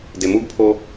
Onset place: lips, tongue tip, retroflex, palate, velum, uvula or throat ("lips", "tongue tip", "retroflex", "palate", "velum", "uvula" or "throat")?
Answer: tongue tip